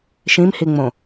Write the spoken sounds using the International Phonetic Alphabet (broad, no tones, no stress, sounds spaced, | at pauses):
ʃ ĩ m h i ŋ͡m õ